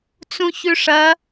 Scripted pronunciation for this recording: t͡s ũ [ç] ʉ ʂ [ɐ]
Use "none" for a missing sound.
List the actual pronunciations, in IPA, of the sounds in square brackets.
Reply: ç, ɐ

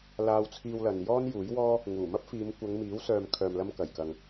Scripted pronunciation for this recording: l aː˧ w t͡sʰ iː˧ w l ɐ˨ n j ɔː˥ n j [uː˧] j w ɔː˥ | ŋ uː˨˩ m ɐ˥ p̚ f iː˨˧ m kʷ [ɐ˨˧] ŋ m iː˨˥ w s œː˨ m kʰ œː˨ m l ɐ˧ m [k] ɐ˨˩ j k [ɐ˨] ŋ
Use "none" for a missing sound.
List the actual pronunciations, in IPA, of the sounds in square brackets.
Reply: uː˨˥, ɐ˨˧, k, ɐ˨

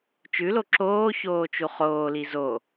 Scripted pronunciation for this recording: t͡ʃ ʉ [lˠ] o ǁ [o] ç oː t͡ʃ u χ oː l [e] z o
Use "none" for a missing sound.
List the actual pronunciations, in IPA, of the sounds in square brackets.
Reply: l, oː, i

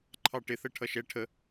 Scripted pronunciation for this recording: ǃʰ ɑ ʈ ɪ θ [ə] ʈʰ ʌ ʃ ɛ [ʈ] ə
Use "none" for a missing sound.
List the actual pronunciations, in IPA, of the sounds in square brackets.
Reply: ə, ʈʰ

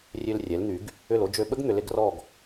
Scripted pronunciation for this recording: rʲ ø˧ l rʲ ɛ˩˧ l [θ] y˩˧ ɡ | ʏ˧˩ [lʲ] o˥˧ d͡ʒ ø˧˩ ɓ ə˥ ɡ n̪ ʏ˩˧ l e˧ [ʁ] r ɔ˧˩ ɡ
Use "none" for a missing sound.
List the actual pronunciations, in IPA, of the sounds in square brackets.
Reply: n̪, l, ɡ

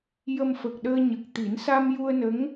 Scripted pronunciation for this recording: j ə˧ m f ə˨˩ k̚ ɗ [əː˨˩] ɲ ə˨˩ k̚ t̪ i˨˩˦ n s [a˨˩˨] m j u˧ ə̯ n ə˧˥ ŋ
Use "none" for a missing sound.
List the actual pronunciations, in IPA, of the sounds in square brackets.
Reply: əː˧, a˧

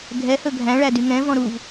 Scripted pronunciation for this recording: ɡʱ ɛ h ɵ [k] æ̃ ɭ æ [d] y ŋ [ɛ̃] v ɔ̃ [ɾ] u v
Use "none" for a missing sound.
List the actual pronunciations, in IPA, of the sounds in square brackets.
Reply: ɡʱ, d, ɛ̃, ɾ

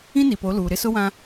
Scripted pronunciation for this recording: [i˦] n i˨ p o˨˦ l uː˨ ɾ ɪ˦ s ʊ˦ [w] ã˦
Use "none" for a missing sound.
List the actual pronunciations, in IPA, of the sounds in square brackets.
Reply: ĩ˦, w

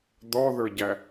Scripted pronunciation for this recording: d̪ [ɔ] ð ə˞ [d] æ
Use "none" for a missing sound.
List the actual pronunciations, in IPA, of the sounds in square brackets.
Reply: ɔ, ɟ

